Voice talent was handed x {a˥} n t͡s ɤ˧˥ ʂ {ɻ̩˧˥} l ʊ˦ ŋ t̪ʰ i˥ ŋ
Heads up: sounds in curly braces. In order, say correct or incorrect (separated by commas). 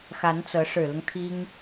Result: incorrect, incorrect